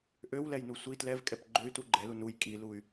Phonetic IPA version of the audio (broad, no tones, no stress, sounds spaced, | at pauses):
ʔ ø w l ɛ j n u sʷ i t l ɛ v kʼ ɛ p ɡ͡ǃ ø y̯ t u ɡ͡ǃ ɛ l u n u j kʼ i l u y̯